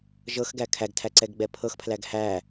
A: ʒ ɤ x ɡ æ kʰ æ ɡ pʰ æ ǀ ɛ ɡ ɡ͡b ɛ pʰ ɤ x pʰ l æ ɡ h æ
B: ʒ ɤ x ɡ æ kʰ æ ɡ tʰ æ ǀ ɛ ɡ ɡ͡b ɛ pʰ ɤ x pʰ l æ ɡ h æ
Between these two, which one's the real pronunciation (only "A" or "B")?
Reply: B